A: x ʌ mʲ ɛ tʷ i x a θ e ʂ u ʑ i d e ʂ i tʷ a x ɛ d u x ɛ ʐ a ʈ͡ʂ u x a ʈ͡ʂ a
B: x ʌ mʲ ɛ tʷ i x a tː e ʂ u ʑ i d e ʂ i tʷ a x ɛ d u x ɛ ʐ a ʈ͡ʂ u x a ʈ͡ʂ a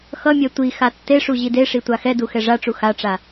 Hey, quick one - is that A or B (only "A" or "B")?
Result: B